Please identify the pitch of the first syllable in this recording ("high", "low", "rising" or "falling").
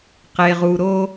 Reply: low